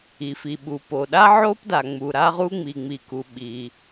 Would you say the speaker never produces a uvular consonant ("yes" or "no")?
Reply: no